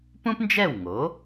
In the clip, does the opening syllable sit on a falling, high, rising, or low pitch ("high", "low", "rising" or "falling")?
high